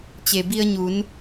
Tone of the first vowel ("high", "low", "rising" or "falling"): low